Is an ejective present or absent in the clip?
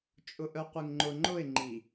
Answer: present